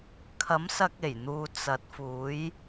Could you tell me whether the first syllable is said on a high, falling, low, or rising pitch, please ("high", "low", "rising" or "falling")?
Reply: rising